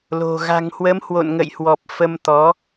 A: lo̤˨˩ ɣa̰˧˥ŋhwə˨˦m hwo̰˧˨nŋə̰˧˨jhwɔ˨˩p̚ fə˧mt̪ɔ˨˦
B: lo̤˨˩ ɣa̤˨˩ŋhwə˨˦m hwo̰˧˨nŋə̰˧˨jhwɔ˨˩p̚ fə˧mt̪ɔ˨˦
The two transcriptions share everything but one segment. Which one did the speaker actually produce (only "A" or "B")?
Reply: B